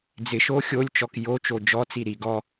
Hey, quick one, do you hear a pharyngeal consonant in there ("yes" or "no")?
no